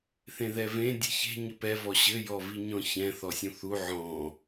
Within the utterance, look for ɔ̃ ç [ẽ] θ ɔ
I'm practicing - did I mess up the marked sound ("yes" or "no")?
yes